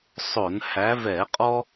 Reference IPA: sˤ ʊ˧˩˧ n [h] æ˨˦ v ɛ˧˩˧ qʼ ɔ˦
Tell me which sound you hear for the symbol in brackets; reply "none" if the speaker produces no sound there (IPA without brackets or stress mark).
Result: h